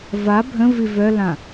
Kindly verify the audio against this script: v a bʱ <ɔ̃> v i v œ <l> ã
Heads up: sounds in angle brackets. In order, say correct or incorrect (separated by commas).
incorrect, correct